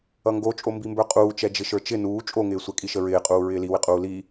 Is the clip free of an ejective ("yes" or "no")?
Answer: no